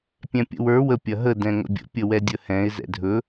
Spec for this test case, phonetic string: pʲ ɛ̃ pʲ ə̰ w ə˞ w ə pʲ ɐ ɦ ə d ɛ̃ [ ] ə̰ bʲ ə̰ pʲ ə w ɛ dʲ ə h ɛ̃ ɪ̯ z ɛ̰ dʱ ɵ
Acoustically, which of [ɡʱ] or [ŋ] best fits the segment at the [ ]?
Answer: ŋ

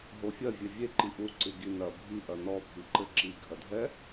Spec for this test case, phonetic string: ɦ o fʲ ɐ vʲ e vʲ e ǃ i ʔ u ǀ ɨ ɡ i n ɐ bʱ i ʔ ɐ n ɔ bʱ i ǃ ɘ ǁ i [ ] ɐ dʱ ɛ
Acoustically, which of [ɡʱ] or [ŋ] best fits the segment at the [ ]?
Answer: ɡʱ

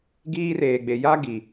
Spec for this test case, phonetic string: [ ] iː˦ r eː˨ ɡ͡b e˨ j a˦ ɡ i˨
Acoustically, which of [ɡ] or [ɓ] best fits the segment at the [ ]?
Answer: ɡ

